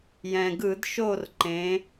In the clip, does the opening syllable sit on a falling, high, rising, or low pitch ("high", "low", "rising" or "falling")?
low